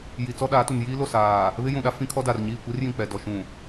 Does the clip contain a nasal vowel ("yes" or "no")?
yes